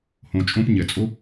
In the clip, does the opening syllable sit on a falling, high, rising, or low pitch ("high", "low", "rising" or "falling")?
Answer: low